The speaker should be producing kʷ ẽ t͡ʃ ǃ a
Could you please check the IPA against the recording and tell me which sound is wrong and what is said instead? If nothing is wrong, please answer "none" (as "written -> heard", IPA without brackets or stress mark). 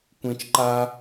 none